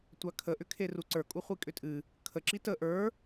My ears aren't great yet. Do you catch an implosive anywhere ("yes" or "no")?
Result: no